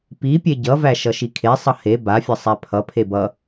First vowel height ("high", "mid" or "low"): high